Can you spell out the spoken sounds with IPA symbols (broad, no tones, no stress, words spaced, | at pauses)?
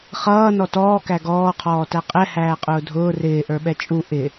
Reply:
χʌː nɔtɔː kæɡɔː qʰɔːtæqʼɛ hæːqʼʊːdʱʊː rɪː ʔə˞ɓɛt͡ʃʼu ʔɪ